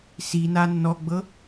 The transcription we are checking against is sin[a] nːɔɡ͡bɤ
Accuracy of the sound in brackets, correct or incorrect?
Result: correct